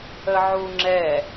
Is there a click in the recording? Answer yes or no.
yes